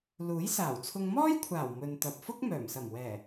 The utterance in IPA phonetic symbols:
luː˨˥jsaː˨˩wt͡sʰʊ˧ŋ mɔː˥jkʷʰaː˨˩w mɵ˨nt̪ɐ˨p̚ fʊ˥k̚ mœː˨˩msɐ˨˩mwɛː˨˩

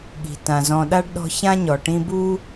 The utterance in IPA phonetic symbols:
ɠi̤˩ tã˩zɔ̃˨ ɗa˥ɖɗɔ̤˦ çã˥ɲɔ˩ʈĩ˦bu˥

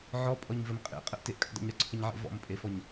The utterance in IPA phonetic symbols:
ʕɔpʼɔɲvəm qʼḛqʼəʔteʔkʼə̰ dˤə̰ɲɾɔǀʰəɲʕḛ vɔ̰mpʼefɔɲ

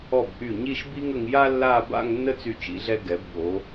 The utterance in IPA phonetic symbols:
ɔ˧˩b ʔy˧˩ ɲi˥˧ʃbi˥ŋə˧ŋ ja˥ lːa˥˧ ba̰˥˧ŋ nːə˥t͡sy˧˩t͡ʃḭ˩˧ɮɛ˧ ɡɛ˩˧bɠo˩˧

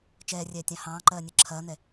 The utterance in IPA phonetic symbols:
t͡ʃɛːrʲɛːtʲɑ̃ hɑ̃ːǃɜːnʲɜ ǁʰɐːn̪ɛ

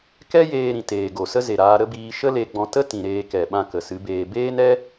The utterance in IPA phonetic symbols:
kɛ˦jeː˧ ɾĩ˨teː˨ɡo˨ sə˦ze˨ɾaː˧ ɾə˦biː˧ ʃə˦le˧ɡ͡bɔ̃˧tə˦ tĩ˨ ɾeː˧kɛ˨ ɓã˧kə˨ sɨ˨˦beː˧ beː˦nɛ˦

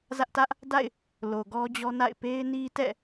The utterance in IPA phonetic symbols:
zä˦ʔtä˦ʔ | da̰˦˨ɪ̯ | lo˨ɡɔ˦d͡ʑɔ˦na̰˦˨ɪ̯ pe˦ɪ̯ni˦tɛ̰˦˨

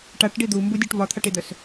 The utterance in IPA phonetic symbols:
ʈaʈɖi d̪umbudʲuʈ vɒt̪ʰaʈid̪œs

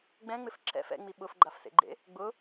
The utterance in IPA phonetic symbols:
ɡ͡bɛ̃ŋ͡mɪf ǁɛ̰f ɛ̰ŋ͡mi ɓʊfɡ͡ǃafsḛɡ͡ǃḛ | ɡ͡bʊ

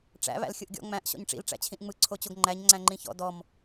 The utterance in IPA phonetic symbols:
ʈ͡ʂæ̰ βæ̰lxʲɯʔɡʲɔ̰ ŋ͡mæ̃ʔ ɕɔ̰ɲʈ͡ʂḭl ʈ͡ʂæ̰t͡ɕʰĩʔŋ͡mɯ ǀʰot͡ɕoɡŋ͡ǃæɲ ŋ͡ǀæ̃ŋ͡ǃĩçɔ̰ dɔm

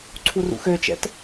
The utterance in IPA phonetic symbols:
ǀʰurṵxøt͡ʃɛ̰t

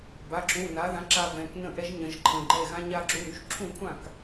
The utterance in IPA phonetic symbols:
ba˩˧˩ǁũ˩˧˩ na˨˥ðã˨˥ǁa˧ vɛ̃˩˧˩knə̃˥˩ʔɛ˦˥ʒ ɲə̃˨˩˦ʒǃʰə̃˩˧˩ ɡ͡ǃɛ˥˩ɣã˦˥ ɲa˧ ǁu˩˧˩ɾy˧ʒǁʰũ˥˩kʷʰã˥˩k

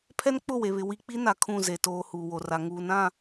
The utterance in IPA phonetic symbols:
pʰɛ˦nk͡pʊ˦˨we˨βɪ˨ wi˨k͡pi˦na˨ kʰũ˦˨ze˨ toː˨ huː˨wo˨ra˨ ŋuː˨nã˦˨

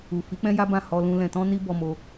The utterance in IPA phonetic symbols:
u˨ fi˨˦k͡pɛ̃˦ja˦bã˦˨ hɔ˧lũ˧ lɛ̃˨tɔ̃˧ ni˦ bɔ˧mo˧

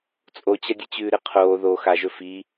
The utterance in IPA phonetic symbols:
t͡sʼot͡ɕɐdʲɨt͡ɕʉː ɾɨqʰoː ðo xaʒɵ fi

